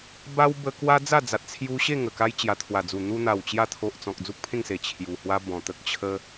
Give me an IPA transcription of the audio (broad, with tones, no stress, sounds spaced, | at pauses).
b a˦ w b ə˧ k w a˦ d͡z a˥˧ d͡z a˨ t̚ t͡sʰ j u˧ ɕ e˥˧ ŋ ə˨˩ k a˧ j t͡ɕ j a˨˩ t̪ʰ w a˨˩ d͡z u˨˩ n̪ u˧ n̪ a˨˩ w t͡ɕ j a˧ t̪ʰ o˨ ʔ t͡s ɔ̃˨ k̚ d͡z u˦ k̚ pʰ ẽ˥˧ ŋ s e˨˩ t͡ɕʰ j u˨˩ h w a˧ b ɔ̃˨˩ t̪ ə˦ k̚ t͡ɕʰ ə˦